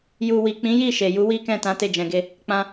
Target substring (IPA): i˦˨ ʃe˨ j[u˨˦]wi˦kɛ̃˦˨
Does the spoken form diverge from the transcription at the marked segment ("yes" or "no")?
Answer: no